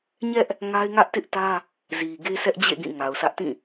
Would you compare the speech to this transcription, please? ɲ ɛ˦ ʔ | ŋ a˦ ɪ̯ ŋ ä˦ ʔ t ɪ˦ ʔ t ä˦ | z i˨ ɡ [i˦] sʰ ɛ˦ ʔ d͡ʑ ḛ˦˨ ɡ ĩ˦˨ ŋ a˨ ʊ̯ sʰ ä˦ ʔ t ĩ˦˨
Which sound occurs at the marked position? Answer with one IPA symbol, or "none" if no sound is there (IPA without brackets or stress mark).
e˦